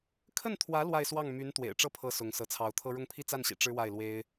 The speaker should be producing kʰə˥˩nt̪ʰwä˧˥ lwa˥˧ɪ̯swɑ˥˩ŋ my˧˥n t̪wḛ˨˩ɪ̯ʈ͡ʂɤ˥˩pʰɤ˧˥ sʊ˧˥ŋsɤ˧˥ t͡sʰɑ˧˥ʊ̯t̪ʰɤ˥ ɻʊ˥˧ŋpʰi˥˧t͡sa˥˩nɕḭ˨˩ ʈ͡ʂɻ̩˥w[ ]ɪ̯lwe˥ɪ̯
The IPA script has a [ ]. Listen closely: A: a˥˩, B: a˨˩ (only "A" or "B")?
A